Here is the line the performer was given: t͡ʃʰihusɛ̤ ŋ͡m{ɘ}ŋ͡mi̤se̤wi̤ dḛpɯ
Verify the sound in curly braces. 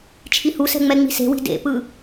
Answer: incorrect: ɛ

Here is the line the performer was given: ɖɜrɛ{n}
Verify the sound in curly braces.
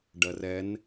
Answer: correct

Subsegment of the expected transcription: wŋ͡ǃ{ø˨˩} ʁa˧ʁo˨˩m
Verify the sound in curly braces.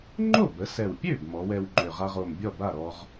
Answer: correct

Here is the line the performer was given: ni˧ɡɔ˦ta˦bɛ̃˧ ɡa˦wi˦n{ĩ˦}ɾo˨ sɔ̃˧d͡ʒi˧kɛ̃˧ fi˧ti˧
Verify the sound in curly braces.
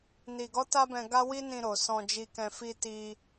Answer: incorrect: ĩ˧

